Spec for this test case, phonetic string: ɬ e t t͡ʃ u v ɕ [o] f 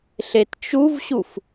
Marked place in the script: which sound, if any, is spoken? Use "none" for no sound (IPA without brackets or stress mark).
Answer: u